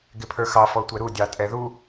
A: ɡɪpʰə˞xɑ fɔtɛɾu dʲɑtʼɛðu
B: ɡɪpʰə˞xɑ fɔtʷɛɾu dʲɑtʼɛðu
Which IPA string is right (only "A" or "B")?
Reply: B